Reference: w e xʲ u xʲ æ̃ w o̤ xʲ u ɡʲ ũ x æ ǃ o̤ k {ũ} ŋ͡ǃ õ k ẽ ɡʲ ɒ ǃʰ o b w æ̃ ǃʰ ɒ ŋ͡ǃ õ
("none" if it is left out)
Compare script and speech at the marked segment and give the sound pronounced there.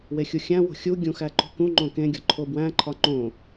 ũ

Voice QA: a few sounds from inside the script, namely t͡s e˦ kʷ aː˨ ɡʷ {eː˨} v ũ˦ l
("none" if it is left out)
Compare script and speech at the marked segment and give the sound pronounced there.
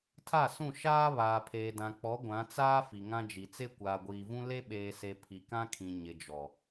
iː˨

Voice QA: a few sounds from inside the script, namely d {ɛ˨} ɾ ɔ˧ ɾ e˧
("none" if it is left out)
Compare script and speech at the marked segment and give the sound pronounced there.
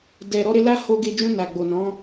ɛ˨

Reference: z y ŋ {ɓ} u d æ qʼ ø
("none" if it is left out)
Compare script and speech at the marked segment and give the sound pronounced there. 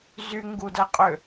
ɡ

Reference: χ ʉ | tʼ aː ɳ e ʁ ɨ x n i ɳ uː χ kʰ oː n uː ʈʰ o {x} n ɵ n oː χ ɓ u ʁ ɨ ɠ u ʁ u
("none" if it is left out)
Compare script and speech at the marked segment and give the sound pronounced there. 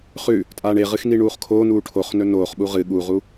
χ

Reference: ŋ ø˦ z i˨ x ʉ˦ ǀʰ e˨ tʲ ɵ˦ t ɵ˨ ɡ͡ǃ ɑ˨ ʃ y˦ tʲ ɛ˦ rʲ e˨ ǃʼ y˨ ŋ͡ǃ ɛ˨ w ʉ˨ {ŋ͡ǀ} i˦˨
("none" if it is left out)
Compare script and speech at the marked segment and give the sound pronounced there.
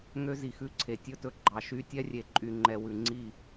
ŋ͡ǀ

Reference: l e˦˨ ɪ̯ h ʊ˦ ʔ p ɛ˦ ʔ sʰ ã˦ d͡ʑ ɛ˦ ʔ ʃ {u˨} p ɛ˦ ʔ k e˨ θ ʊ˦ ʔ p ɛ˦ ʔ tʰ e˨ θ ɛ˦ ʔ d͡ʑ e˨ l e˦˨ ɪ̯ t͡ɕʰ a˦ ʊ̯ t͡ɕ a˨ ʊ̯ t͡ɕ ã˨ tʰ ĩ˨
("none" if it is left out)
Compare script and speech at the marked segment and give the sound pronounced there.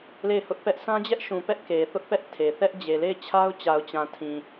ũ˨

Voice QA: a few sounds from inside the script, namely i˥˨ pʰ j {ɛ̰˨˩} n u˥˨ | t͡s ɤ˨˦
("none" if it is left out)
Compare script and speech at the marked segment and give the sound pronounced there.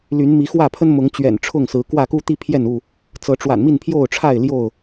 ɛ˥˨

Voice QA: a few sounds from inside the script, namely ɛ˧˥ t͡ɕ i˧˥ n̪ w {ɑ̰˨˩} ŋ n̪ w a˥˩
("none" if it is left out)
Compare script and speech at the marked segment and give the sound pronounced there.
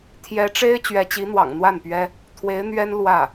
ɑ̰˨˩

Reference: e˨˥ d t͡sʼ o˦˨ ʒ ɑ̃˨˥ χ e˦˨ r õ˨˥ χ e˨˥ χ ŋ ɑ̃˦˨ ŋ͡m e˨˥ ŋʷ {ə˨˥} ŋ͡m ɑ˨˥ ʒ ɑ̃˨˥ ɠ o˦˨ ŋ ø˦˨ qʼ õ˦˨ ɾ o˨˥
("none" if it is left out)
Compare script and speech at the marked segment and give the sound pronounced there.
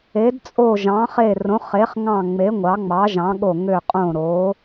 ɑ˨˥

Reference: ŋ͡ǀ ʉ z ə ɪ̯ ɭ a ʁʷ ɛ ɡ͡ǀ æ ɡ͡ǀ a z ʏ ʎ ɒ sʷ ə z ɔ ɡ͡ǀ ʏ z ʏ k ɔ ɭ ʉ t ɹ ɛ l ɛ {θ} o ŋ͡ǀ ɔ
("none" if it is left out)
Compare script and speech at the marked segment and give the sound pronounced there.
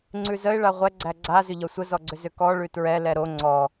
ɾ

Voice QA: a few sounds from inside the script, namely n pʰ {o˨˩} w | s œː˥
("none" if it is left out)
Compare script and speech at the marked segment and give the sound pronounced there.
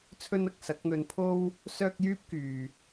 o˥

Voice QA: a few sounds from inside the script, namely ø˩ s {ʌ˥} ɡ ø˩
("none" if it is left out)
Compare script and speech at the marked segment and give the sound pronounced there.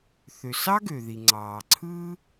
ɑ˥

